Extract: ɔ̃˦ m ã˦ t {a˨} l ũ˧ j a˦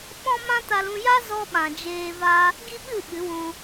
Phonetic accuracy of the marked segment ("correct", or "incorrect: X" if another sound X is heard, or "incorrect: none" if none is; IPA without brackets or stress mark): incorrect: a˧